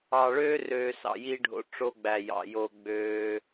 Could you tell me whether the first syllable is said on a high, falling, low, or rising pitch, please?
low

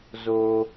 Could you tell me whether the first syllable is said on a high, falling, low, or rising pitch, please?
low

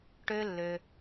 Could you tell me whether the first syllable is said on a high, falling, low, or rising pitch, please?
high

